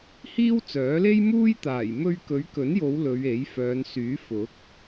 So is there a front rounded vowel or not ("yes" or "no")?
yes